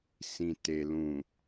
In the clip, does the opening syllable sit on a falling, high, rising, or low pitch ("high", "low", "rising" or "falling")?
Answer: low